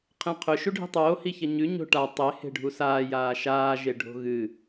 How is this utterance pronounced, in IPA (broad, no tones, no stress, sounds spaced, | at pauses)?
qʰ ẽ qʰ ɵ ʃ u ɖʱ i̤ tˤ oː h i ç ɐ ɲ ʉ ɲ o̤ ʈ a tˤ e h e̤ ɖʱ u s aː j aː ʃ aː ʒ e ɖʱ o̤ ɣ ɨ